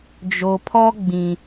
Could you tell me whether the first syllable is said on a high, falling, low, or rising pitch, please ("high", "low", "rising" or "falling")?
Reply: low